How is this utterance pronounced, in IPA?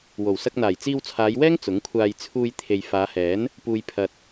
w o˨˩ w s ɐ˧ k̚ n̪ aː˨˩ j t͡s iː˧ w t͡sʰ aː˨˧ j w ɛː˥ ŋ t͡s ʊ˨˥ ŋ kʷʰ aː˧ j t͡sʰ uː˧ j t̪ʰ e˨ j f aː˨˧ h ɛː˨˥ n | p uː˨ j pʰ ɐ˨ t̚

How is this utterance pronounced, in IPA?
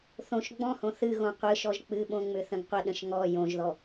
θ õ ʃ ɡ͡b ɔ̃ h õ θ ɨ ɣ õ qʷ ɨ ʃ ɔ ʒ k͡p ɨ ɓ õ ŋ͡m ʏ θ ə̃ ɡ qʷ ə ɗ ə̃ ʃ ŋ ɔ j õ ʒ ð ɔ

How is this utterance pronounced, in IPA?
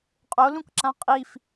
qʼ o l ũ k ǁ ã qʼ i f

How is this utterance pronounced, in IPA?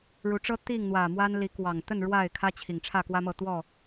ɻ u˨˦ ʈ͡ʂ ɤ˦ t̪ i˥˨ ŋ n̪ w ä˨˩ m w a˦ n l i˨˦ k w ɑ˨˩ ŋ t̪ ə˥˨ n ɻ w a˥˨ ɪ̯ kʰ ä˦ t͡ɕʰ i˨˩ ŋ ʈ͡ʂʰ ä˥˨ k w ä˦ m ɤ˥˨ t̪ w ɔ˥˨

